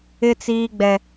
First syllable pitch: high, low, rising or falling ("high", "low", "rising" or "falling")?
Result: high